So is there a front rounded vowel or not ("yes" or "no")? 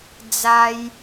no